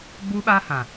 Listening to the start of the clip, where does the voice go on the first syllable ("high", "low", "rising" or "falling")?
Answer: high